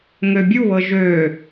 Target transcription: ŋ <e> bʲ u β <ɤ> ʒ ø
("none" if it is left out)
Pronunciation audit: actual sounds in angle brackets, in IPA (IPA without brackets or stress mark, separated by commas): ø, ɤ